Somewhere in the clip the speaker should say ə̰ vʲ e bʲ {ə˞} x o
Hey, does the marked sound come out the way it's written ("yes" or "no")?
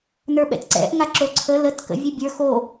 yes